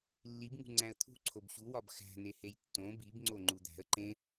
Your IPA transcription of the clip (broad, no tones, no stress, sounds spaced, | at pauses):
lː i b ŋ ṳ ŋ͡ǀ æ̃ ə̯ t̪ʰ ṳ ǀʰ o b ɕ u w ɒ b x æ̤ n e h e j tː õ b i b ŋ͡ǀ o ŋ͡ǃ u d̪ æ̤ ə̯ ǃ ẽ